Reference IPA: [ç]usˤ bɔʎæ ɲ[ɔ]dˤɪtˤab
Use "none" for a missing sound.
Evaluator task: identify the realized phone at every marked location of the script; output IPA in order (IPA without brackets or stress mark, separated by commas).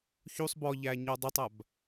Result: ç, ɔ